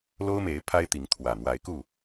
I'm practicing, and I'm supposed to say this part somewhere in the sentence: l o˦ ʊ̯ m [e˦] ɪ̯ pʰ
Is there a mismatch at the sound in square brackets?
yes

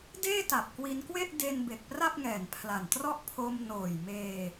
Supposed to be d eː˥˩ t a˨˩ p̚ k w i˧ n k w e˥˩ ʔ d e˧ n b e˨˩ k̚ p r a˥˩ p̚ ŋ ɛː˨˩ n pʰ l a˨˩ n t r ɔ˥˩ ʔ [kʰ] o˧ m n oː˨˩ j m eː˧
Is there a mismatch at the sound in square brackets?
yes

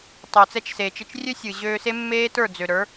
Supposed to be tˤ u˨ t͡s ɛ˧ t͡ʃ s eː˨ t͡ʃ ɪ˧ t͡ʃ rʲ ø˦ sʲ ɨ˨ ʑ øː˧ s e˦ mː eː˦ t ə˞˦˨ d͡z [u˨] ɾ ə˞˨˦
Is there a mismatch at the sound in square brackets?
yes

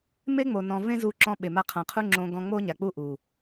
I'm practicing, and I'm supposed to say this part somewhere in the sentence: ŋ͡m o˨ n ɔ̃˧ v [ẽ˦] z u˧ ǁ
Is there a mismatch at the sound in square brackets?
no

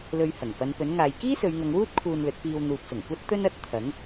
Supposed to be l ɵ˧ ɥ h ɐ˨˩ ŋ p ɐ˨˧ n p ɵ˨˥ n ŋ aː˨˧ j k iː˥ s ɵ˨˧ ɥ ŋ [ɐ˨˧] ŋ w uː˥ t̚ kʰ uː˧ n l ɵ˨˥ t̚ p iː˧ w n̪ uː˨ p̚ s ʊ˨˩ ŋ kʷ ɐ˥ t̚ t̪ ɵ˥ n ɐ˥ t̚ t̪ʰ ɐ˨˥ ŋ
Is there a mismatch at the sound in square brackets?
no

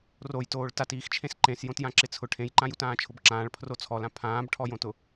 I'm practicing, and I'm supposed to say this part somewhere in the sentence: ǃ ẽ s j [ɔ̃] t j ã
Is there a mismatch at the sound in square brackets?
yes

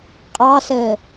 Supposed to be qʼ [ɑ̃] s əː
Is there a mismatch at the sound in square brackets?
yes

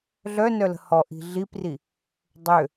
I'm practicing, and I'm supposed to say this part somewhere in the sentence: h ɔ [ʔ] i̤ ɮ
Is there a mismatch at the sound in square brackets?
no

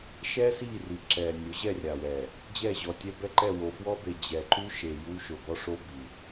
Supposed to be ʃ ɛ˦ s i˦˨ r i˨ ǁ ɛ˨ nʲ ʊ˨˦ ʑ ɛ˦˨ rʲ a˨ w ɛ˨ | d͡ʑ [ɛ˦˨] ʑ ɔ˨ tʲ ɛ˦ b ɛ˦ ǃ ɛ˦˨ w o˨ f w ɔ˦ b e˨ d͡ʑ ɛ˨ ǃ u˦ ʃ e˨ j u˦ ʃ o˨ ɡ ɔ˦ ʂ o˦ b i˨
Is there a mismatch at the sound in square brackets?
no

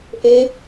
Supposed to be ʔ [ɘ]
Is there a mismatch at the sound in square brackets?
yes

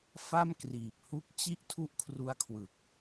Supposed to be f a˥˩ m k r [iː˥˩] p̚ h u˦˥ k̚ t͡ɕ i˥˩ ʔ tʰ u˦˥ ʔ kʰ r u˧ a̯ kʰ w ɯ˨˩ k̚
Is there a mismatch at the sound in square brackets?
yes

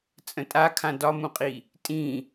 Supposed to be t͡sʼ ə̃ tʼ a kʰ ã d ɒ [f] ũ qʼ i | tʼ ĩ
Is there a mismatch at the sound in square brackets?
yes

